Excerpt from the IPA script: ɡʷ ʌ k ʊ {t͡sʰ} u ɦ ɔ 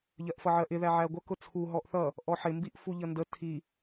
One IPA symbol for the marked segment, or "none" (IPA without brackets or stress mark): t͡sʰ